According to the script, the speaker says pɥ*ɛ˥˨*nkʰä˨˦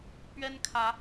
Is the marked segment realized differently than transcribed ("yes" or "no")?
yes